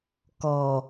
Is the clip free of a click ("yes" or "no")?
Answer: yes